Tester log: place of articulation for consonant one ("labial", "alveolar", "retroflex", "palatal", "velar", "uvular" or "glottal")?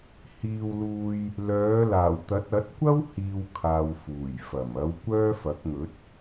glottal